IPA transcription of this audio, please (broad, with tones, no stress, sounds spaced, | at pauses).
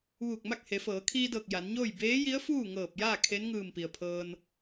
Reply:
ʋ uː˧˩ k̚ m a˥˨ k̚ h e˩˧ f ɤː˩˧ kʰ iː˧ d ɤː˧˩ k̚ j a˩˧ n ɲ oː˥˨ j b eː˧˥ j i˧˥ ə̯ f uː˥˨ ŋ ɤː˧˩ p̚ j aː˥˨ kʰ e˧˥ n ŋ ɯː˧˩ m p i˩ ə̯ pʰ ɤː˧ n